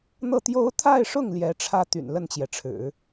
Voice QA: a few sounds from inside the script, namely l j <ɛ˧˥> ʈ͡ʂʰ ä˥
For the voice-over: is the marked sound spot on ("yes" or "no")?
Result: yes